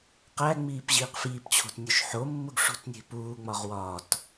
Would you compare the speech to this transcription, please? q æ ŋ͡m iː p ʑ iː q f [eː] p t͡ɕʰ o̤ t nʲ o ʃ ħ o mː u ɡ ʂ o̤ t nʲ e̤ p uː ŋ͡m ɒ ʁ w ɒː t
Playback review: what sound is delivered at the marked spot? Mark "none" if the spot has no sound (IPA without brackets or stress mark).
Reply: iː